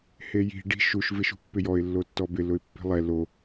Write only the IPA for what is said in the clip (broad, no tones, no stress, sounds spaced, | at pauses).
h e j i̤ ɖ i̤ ʃ u ʃ v ɪ ʃ ṳ pː ɪ j ɔ ɪ̯ lː o tː ɔ b ɪ l ʊ ɪ̯ pː i̤ lˠ ɛ l o